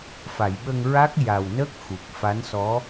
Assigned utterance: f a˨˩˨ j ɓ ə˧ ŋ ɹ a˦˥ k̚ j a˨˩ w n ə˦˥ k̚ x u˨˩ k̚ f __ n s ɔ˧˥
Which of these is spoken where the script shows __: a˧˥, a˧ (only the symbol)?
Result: a˧˥